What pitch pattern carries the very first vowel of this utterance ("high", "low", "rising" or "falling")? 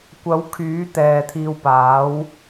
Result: rising